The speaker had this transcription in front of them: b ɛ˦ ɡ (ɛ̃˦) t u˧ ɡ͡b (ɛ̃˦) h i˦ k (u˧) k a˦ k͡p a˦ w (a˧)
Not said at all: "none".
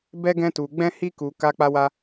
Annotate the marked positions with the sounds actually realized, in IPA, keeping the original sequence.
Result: ɛ̃˦, ɛ̃˦, u˧, a˦

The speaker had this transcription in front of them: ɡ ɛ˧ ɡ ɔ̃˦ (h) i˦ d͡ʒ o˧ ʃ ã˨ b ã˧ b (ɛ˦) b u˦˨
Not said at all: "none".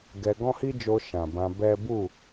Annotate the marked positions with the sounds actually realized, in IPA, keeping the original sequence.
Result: h, ɛ˦

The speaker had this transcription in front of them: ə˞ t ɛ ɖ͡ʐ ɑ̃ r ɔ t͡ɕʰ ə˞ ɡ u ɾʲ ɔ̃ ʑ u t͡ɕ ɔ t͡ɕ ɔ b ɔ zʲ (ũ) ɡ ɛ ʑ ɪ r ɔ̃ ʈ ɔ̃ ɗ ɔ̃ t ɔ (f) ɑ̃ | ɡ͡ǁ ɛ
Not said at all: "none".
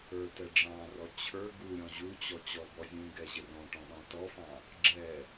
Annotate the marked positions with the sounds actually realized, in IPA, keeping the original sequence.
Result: ũ, f

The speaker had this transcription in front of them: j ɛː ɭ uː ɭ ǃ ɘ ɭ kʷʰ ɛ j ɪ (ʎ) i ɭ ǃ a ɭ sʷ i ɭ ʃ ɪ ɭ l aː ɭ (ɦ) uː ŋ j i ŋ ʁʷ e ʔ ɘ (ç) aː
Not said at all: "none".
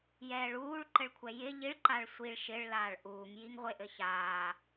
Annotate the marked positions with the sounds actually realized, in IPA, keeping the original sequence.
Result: ʎ, ʔ, ç

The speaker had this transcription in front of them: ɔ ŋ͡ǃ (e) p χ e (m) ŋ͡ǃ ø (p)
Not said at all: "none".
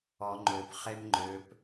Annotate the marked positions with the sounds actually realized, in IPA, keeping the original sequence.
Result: ø, m, p

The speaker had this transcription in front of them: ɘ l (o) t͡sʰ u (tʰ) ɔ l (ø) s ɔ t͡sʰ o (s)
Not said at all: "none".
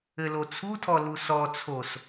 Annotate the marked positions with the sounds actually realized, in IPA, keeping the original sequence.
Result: o, tʰ, u, s

